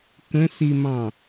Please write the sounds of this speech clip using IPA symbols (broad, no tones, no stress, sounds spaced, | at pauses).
k ə̃ s i m ɑ̃